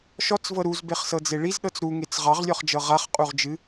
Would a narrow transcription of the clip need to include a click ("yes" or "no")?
no